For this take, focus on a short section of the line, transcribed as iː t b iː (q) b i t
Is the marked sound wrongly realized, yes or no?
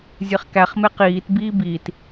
yes